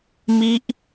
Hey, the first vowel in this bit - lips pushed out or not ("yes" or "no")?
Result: no